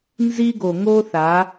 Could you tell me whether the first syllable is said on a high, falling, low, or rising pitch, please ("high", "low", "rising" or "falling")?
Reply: high